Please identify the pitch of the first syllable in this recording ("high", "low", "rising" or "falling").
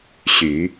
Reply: low